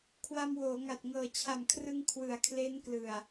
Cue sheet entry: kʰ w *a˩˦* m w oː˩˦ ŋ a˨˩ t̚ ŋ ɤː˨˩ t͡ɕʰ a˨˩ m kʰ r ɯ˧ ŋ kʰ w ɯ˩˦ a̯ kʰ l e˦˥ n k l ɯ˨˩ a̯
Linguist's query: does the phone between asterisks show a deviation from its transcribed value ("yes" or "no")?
yes